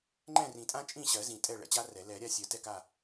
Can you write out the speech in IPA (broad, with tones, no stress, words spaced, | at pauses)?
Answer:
ŋ͡ǃɛ̃˥˨rĩ˨˩˦tʼã˥ t͡ʃʼĩ˥˨ɕɜ˨˩˦ zĩ˨˩˦tʼɛ˥˨ ɭɛ̰˥˨t͡ɕa˥rɛ˨˩˦ lɛ˨˩˦ɾʲa˥˨sʲɜ˨˩˦ tɛ˥˨ka˥˨